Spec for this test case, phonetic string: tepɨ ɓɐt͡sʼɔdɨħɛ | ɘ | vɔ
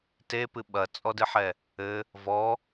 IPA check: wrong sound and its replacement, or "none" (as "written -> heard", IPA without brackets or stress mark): none